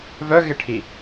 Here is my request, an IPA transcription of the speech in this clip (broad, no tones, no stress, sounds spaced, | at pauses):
v œ ɣ ɪ ʈʰ i